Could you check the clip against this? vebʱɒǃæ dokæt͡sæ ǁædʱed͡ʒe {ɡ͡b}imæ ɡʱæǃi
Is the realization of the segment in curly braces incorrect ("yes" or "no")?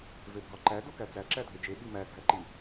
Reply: yes